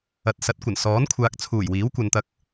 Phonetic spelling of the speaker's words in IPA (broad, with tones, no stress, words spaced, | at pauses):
ɐ˨t̚sɐ˨˥t̚kʷɐ˨˩n sɔː˨˥nkʷʰaː˨k̚t͡sʰuː˨˩j wiː˨˥wkʷɐ˨nt̪ɐ˧k̚